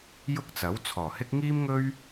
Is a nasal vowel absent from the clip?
yes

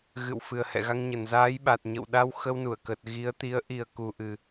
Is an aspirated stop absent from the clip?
yes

